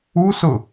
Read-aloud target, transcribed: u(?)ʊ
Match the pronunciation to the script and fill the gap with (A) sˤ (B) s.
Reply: B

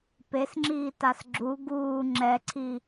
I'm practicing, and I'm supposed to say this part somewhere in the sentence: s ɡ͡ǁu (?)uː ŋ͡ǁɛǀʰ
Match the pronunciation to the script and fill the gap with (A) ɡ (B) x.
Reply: A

